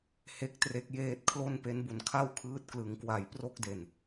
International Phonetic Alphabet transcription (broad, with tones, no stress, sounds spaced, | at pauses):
h e˦˥ k̚ t r e˦˥ k̚ j eː˦˥ t̚ kʰ l o˥˩ n p e˦˥ n b u˨˩ n kʰ a˥˩ w kʰ ɯː˦˥ t̚ k l ɯ˩˦ ŋ k w a˨˩ j p r o˦˥ k̚ d e˨˩ n